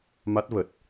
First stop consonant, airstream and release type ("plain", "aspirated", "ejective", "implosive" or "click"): plain